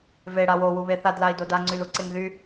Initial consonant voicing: voiced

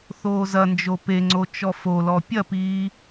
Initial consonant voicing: voiceless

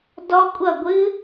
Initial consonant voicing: voiced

